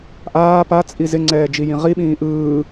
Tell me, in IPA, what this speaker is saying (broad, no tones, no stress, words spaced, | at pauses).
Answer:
ʔaː pat͡sʼi zɪŋ͡ǀɛːd͡ʒijĩ ʁiɓĩː ʔɯː